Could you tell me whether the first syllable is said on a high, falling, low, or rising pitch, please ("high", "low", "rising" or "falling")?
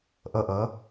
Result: high